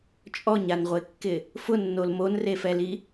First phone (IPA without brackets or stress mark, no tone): t͡ʃʼ